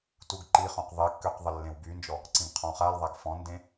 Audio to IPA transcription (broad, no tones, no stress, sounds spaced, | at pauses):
t u ɡ ǃ i χ õ q ðˤ i kː ø q ðˤ ə lː ẽ w b y n d͡ʒ ɔ | ǀ ĩ ɡ qʰ ɔ̃ χ a l ðˤ a ɡ f ɔ̃ n d ẽ